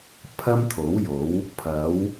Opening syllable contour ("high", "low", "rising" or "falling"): high